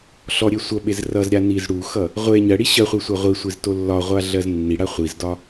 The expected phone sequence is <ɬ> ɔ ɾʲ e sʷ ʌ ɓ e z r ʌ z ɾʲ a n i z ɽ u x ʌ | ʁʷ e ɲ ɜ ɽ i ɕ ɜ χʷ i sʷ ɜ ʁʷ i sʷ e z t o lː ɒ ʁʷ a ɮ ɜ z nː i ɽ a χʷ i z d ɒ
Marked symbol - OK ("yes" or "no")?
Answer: yes